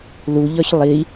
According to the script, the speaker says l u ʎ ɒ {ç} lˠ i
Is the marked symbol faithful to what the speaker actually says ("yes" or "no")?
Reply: yes